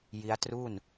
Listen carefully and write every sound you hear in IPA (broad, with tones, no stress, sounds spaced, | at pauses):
j i˦˥ a̯ t r uː˥˩ n